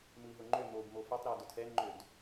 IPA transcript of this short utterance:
mɯi̯ɦʊŋ͡ǃø mobmo fetˤɾeu̯ dʊtʰɛnŋ͡ǃød

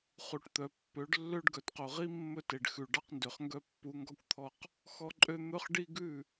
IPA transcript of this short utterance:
χu˨ʈt̪œ˨ pːø˨˦ɖlːø˦ɖ ɡœ˨tqo˨ʁi˦ mːɵ˦te˨ɖxʉ˨ ɖɑ˦qndø˨χ ŋɡœ˦pːu˨˦ ŋɡɔ˦kʷt̪ʰɔ˦q | xɔ˦ǃʼø˦ n̪ɵ˦χ ɖi˦ɡʉ˦˨

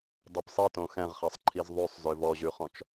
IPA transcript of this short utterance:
dˤopsˤitõ xɛ̃ʁχɛsˤǃʰiz ðˤʉsˤ zøvɔʑʉχɔ̃t͡ʃ

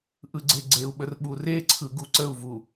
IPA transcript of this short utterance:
ʔɯɡ͡ǀeɡ͡ǀeu̯ɓər ɓureǀʰɯ ɡuǀəu̯vu

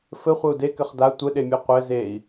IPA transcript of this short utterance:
fɘχʷɘu̯ dekɘχ da tʷɘɗemʲu qʷɘ zei̯

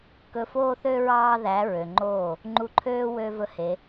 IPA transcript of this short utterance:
kɵ˧foː˦θø˦ ɹɑː˦ðæ˨˦ɹø˨ŋ͡ǃoː˦˨ | ŋ͡ǃu˧ǃʰøː˦ wø˦ vɵ˦he˨˦

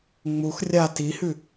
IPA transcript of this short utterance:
ŋ͡mux rʲa tihʉ

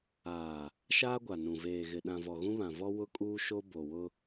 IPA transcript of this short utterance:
aː˨ | ʃaː˦ɡʷa˨ nũ˨ veː˨ɣɪ˨ ɗã˨vɔ˨ɣũ˦ βã˨vɔ˦ wʊ˦kʼuː˦ʃo˦ bo˨wʊ˦

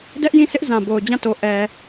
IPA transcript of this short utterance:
dɛ˦ʔjĩ˦˨sʰɪ˦ʔ zã˨bo˨ʊ̯d͡ʑã˦˨to˨ ʔɛ˨

